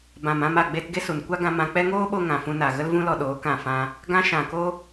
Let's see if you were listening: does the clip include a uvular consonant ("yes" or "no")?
no